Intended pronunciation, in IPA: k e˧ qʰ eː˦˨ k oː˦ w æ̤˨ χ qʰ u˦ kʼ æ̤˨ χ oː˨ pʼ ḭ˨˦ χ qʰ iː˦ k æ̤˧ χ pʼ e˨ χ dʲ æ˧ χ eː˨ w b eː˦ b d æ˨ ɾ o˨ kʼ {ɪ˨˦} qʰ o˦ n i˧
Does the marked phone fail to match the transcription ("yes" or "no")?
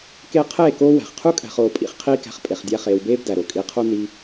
yes